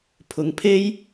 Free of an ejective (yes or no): yes